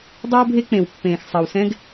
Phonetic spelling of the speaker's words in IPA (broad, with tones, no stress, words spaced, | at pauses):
dˤɵː˦bʱe˦ k͡pẽ˨wpːẽː˨x sˤɜ˨wsɛ̃˦ɡ